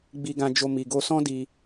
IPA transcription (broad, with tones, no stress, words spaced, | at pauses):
ɡ͡bi˧ɡã˧d͡ʒo˧ mi˨ɡo˧ sɔ̃˦di˧